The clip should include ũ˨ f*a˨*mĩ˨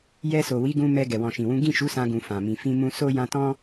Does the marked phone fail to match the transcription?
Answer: yes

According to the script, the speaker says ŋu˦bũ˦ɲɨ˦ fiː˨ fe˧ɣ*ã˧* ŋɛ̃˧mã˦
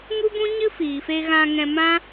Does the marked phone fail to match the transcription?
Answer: no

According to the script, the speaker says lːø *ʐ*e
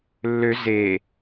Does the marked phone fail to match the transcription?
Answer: yes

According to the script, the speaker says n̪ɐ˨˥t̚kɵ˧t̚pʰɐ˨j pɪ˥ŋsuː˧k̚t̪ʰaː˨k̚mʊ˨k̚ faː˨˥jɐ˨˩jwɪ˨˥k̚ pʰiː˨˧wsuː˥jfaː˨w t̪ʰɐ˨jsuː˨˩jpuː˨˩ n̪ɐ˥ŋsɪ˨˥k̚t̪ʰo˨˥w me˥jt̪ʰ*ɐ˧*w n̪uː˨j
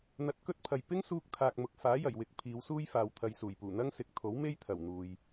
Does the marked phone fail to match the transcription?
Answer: yes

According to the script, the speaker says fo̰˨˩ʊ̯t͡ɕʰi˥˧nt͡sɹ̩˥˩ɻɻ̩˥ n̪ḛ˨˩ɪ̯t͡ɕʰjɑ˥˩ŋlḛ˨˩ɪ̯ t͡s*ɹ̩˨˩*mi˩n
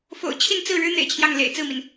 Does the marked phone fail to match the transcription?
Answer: yes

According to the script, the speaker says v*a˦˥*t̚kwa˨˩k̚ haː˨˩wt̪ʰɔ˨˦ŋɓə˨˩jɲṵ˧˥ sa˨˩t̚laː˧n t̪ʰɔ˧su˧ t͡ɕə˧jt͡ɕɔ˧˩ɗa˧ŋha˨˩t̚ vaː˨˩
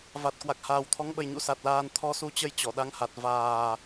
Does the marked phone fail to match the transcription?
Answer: yes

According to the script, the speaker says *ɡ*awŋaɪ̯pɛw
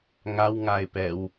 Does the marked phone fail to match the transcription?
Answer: yes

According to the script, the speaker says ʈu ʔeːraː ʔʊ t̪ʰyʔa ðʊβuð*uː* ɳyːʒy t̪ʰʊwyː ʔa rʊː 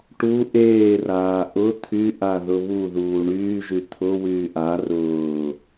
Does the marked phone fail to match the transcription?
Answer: no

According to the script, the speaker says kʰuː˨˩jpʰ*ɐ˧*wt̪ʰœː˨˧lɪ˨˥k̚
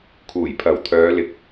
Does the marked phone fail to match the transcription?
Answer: yes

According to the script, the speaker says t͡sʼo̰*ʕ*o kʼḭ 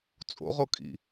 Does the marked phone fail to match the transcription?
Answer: yes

